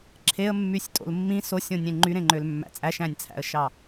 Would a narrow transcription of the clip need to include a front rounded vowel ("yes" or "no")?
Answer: yes